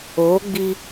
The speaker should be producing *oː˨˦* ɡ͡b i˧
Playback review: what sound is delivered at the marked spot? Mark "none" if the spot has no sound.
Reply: oː˨˦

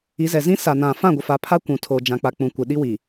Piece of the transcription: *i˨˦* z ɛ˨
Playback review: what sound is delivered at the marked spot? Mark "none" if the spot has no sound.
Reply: i˨˦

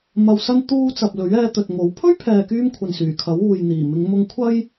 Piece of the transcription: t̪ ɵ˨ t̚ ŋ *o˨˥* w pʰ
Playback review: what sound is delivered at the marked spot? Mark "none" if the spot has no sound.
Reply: o˨˥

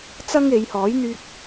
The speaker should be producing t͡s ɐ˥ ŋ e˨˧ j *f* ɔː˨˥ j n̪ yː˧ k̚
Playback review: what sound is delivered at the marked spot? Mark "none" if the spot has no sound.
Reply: h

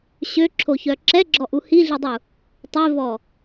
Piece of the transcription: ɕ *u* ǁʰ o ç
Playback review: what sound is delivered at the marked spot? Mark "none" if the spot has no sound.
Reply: ø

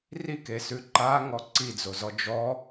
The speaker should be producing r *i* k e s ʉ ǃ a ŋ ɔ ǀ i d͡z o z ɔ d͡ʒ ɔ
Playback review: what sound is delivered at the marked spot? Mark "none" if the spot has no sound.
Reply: i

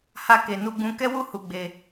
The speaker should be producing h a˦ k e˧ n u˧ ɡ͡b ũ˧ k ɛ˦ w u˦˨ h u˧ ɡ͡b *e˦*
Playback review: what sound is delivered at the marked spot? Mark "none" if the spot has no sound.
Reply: e˧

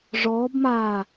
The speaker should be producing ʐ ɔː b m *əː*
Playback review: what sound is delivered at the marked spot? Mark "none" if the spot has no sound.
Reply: aː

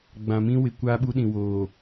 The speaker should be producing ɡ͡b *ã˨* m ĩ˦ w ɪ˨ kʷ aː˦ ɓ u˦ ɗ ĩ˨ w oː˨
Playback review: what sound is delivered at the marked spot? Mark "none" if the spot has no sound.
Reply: ã˨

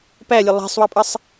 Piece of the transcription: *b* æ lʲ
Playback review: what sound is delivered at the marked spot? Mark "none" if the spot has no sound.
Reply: p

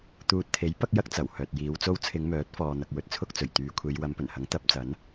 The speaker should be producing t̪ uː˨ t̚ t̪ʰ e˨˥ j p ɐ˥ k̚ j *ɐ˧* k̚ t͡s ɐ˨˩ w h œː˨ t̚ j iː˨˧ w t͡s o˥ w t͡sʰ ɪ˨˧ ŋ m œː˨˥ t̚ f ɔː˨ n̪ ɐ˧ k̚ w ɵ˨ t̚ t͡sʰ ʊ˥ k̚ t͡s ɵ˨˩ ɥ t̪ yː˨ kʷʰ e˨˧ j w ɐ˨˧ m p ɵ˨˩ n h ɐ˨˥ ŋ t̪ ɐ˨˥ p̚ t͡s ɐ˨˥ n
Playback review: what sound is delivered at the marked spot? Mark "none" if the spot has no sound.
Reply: ɐ˥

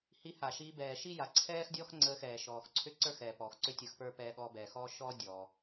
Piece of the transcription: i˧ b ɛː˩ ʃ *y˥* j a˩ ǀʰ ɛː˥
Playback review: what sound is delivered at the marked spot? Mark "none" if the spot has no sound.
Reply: i˥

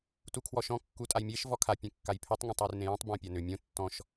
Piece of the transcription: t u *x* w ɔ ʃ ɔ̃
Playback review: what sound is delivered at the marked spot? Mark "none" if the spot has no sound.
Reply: kʰ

